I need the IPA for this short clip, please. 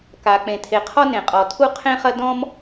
k a˩ k͡p ẽ˩ tʰ e˩ qʰ ɔ˥ n ẽ˩ qʼ ɔ˩ tʰ u˥ qʰ ẽ˥ χ ɐ˥ d ɔ̃˥ m

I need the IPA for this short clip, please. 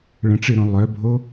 ɭ ə̃ ʈ͡ʂ ɨ ɾ õ lˠ œ bʱ o

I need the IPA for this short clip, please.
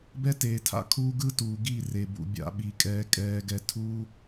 b ɛ˦ t eː˨ tʰ a̰˦ kʰ uː˦ ɡ ɯ˦ t uː˨ ɡ i˦˨ r e˨ b ṵ˨ bʲ a̰˧ ɓ i˨ kʼ ɛː˧ kʼ ɛː˧ ɡ ɛ˧ tʰ uː˦

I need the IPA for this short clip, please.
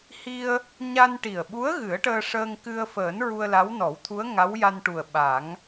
h i˧ ə̯ | ɲ a˧ n ʈ i˨˩ ə̯ ɓ u˧˥ ə̯ ɣ ɨ˨˩˦ ə̯ ʈ əː˧ ʂ əː˧ ŋ k ɨ˧ ə̯ f əː˨˩˦ n ɹ u˧ ə̯ l a˧˥ w n ɔ˨˩˦ w t̪ʰ u˧˥ ə̯ ŋ a˧˥ w j a˧ n ʈ u˨˩ ə̯ ɓ a˨˩˦ ŋ

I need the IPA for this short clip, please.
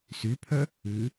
s y pʰ œ | ʉ

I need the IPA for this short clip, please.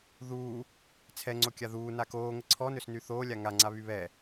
ð uː | t͡sʰ ɛ ŋ͡ǀ o kʲ a ð uː n a k oː ŋ ə ǀʰ ɔ n ø s n y θ oː lʲ a ŋ a ŋ͡ǀ a β y β ɛ

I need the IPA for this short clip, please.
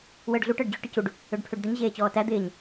w əː ɖ ɮ u ʈ əː ɖ d͡ʑ y ʈ ə c u ɖ | ø ɖ pʰ ø ɖ d̪ ə ɲ ʑ eː t͡ɕ ɔː t æ d̪ ɪː ɲ

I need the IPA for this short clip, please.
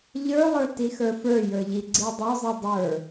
ʎ ə˞ lˠ ə˞ t i x ə˞ f ə˞ j ə˞ ʎ i ɡ͡ǀ i dˤ œ zˤ i dˤ ə˞

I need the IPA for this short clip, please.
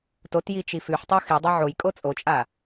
t o t j i t͡ʃ i f ʉ ħ tˤ o x i dˤ ɐ ʕ o j kʼ o t͡sʼ o t͡ʃʼ a

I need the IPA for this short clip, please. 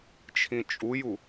t͡ʃʰ ĩ t͡ʃʼ u j u

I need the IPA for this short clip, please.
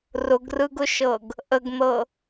r ʊ ɡ r ɯ ɡ ʊ ʃ ɤ ɡ | ʔ ə ɡ n̪ ɤ

